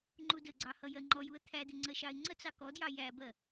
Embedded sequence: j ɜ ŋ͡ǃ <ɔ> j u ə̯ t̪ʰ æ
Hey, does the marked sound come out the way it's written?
yes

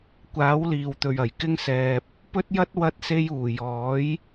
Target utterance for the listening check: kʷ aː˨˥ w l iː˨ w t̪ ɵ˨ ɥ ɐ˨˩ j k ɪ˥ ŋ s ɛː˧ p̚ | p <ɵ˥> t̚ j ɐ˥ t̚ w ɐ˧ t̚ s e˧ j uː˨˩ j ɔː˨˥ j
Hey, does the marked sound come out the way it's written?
yes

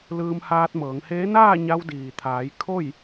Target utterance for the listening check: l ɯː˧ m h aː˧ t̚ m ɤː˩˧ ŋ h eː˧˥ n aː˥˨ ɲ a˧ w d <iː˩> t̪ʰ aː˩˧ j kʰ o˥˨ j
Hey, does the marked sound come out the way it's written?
yes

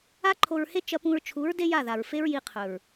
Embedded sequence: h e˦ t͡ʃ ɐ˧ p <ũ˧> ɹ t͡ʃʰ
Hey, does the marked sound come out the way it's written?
yes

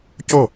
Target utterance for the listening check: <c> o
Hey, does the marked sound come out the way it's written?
yes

